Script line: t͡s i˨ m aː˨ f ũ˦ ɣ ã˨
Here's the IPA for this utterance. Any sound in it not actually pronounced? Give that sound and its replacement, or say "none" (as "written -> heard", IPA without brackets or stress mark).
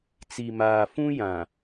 ɣ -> j